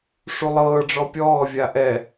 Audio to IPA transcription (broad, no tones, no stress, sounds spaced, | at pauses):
ʂ u lˠ ɤː ɖ͡ʐ ɔ pʲ ɔː vʲ a ʔ ɛ